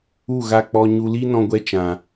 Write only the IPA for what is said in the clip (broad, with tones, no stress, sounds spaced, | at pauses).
u˦˨ ɣ a˧ k͡p ɔ˧ ɲ u˧ l i˦ n ɔ̃˧ ɡʷ ɛ˧ t͡ʃ ã˨